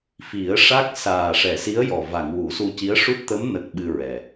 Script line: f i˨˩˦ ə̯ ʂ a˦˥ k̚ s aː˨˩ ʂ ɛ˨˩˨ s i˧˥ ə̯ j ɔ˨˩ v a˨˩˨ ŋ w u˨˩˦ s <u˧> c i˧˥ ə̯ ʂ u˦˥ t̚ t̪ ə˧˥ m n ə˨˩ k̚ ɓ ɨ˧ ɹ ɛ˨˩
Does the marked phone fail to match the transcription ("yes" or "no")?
no